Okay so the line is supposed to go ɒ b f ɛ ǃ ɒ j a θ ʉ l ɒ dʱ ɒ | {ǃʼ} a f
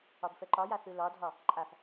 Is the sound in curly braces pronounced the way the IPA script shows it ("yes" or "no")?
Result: yes